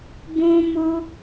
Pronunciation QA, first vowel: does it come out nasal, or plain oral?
nasal